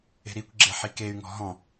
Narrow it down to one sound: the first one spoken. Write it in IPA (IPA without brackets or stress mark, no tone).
e̤